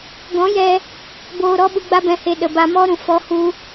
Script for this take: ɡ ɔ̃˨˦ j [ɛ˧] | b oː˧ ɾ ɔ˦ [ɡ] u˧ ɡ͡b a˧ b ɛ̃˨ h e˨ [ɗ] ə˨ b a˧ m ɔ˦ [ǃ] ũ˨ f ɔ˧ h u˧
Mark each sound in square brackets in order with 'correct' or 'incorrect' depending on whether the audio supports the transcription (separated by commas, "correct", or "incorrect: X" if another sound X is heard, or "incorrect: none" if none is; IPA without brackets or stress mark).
correct, incorrect: ɓ, correct, incorrect: ɾ